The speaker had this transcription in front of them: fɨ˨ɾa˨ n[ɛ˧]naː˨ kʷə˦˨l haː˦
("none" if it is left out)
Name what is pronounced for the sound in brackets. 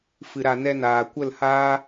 ɛ˧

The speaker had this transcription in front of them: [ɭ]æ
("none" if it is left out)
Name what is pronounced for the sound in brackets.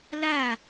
l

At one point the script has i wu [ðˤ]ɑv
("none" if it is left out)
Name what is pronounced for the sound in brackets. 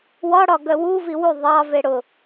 ðˤ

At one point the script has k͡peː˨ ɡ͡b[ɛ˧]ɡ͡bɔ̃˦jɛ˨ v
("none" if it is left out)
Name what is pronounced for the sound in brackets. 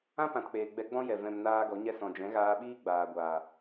ɛ˧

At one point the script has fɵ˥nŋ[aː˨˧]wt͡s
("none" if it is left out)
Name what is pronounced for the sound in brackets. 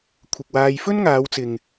aː˨˧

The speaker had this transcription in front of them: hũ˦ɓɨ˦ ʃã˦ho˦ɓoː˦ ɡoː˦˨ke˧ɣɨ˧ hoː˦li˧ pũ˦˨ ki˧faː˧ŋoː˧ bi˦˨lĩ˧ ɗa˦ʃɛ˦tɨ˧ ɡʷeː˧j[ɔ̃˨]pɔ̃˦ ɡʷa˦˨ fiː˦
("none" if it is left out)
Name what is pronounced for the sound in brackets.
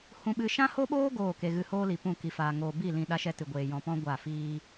ɔ̃˧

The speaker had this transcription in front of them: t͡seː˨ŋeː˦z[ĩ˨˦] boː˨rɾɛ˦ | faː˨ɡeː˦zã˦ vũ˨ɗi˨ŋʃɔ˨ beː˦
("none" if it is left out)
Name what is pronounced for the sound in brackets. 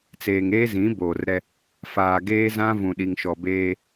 ĩ˨˦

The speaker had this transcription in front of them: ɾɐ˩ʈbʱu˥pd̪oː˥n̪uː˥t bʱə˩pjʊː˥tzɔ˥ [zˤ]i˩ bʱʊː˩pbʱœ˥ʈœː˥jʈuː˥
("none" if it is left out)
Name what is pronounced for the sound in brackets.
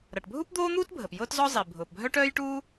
zˤ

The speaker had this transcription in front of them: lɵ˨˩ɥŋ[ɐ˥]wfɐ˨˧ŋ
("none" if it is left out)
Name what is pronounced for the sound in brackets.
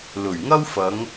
ɐ˥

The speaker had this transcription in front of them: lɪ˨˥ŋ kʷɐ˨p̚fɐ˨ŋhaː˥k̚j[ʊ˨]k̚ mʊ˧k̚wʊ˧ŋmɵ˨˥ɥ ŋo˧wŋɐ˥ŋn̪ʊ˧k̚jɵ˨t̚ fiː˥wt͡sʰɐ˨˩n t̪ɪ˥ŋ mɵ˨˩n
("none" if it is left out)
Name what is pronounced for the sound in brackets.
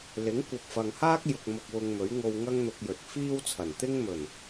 ʊ˨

